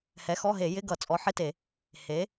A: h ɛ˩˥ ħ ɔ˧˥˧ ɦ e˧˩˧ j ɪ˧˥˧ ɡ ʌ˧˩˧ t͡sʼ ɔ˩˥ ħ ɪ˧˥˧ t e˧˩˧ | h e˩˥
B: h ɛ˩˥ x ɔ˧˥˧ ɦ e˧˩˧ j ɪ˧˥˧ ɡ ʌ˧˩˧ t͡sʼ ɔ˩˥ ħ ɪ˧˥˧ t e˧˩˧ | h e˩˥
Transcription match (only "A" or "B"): B